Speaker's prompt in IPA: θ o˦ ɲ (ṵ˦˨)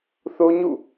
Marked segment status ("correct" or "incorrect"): correct